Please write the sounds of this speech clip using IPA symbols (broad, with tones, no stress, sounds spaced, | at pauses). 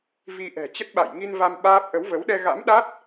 v i˧ ʔ ɛ̤˨˩ t͡ɕ ə˦˥ t̚ ɓ a̰˧˨ j ŋ i˧ n v a˧ m ɓ aː˦˥ p̚ ʔ ə˨˦ w v ə˨˦ w ɗ ɛ˧ ɣ a̰˧˥ m ɗ a˦˥ t̚